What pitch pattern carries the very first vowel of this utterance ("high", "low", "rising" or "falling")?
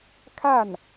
falling